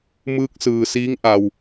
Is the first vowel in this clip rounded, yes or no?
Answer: no